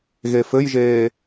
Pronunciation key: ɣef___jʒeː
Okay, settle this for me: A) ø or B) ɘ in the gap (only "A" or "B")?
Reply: B